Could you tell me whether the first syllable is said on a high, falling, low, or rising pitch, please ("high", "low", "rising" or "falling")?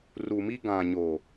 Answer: low